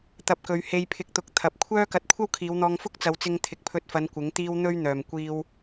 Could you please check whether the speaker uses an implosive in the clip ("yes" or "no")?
no